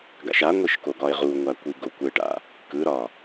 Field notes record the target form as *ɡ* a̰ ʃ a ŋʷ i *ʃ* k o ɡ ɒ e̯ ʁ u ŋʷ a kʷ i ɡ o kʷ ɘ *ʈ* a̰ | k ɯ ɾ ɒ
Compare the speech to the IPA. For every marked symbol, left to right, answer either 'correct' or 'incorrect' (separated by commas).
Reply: correct, correct, correct